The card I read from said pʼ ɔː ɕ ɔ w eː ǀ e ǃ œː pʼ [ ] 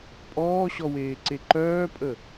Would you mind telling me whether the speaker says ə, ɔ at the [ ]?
ə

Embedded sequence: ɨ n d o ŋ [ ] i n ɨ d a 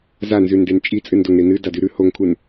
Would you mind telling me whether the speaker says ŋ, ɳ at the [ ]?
ɳ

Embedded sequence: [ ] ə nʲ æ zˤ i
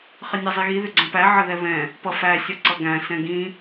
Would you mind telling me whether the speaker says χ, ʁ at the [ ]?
χ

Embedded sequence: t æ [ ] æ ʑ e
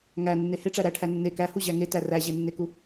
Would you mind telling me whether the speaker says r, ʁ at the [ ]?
r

